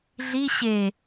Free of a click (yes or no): yes